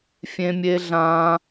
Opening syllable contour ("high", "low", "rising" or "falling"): high